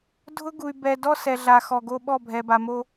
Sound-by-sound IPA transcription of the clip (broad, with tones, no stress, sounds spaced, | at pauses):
dʱ ʊ˦ ɡ u˨ y̯ b ɛ˨ d ɔ˦ s ɛ˨ ɮ a˨ x ɔ˨ ɡ o˦ ɓ ɔ˦˨ bʱ ɛ˨ b a˨ m o˦